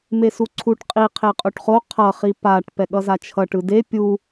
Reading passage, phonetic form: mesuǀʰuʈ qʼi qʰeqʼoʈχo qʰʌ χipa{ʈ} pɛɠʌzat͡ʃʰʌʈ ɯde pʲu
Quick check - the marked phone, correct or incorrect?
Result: correct